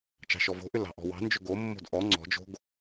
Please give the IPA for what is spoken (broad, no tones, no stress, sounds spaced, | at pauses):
t͡ʃ ɑ̤ ʃ ɔ v o̤ ʔ ʏ l ɑ̤ ʔ ɔ̤ w ɑ̤ n d͡ʒ ʏ ɡ o mː o̤ d ʔ ɔ ŋ͡ǀ ɔ̤ d͡ʒ o̤ ɡ